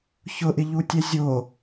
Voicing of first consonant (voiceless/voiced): voiceless